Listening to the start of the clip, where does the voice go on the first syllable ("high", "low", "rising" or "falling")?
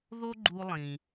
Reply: high